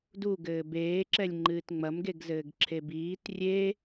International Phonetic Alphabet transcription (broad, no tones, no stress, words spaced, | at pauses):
duɡɘː beːǁɛlʲ ŋ͡ǃɨːtŋ͡mɐmɡeɡzɘːɡ ǁʰebiːt rʲe